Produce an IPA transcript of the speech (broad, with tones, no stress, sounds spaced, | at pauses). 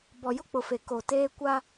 b ɔ˨ j ʊ˦ k͡p ʊ˨ f e˨ k o˨ t eː˦ kʷ a˦